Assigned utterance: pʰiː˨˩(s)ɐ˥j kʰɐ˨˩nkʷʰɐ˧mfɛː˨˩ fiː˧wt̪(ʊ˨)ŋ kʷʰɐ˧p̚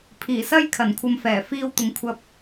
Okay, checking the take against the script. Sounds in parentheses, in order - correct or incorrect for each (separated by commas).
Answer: correct, correct